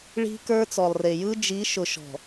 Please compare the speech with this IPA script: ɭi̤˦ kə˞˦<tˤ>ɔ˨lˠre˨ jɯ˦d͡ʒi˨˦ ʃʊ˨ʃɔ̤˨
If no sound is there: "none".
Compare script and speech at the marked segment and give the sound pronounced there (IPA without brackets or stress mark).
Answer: t͡s